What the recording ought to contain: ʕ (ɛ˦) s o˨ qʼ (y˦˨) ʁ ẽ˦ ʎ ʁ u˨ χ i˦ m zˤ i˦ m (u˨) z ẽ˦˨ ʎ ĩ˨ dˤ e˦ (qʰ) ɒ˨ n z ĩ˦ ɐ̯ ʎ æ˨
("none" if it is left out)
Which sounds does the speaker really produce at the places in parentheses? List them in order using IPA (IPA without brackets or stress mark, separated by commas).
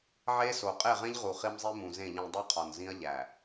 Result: e˦, e˦˨, ũ˨, qʰ